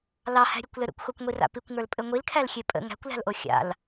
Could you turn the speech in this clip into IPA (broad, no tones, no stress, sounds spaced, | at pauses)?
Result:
l ɑ h æ̤ ɾʲ ɘ kʷ l ɘ ɾ ə̰ kʷ x o kʷ ŋʷ i r a̰ p i kʷ ŋ ə˞ l pʼ ɘ ŋʷ i l kʰ æ l xʲ e pʼ ə̰ ŋ æ̤ kʷ l æ̤ l ʔ o xʲ a̰ l